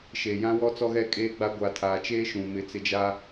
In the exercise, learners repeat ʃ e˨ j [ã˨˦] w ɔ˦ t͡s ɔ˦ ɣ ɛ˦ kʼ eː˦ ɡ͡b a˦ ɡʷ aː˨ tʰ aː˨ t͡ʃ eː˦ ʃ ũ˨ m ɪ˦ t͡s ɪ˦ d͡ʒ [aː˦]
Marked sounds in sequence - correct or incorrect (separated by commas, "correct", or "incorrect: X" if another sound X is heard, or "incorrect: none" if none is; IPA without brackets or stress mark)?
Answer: incorrect: ã˦, correct